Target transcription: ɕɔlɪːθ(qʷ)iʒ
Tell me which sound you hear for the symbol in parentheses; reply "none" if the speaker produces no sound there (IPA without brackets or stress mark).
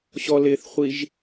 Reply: χʷ